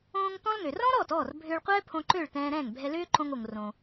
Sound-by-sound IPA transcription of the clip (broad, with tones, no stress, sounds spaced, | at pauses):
õː˧ ŋ t ɔ̃˥ l ŋ ø˩ r ɔ̃˥ ɾ ɔ˥˩ t ɔː˥˩ r bʱ ʏː˧ ɭ qʷ ɛː˥ pʰ õ˧ ǃ ø˥˩ ɭ t ɛ̃ː˧ ɾ ɛ̃˥˩ ŋ bʱ ɛ˧ l ʏː˥ ǃ õ˧ ŋ o˩ ŋ r õ˩